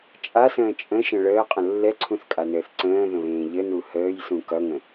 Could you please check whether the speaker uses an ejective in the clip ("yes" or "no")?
yes